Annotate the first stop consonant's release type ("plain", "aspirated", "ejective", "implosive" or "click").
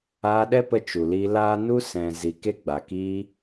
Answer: implosive